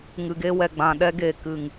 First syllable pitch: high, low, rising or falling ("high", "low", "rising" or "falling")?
low